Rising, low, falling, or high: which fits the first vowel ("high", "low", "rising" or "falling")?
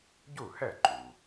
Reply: falling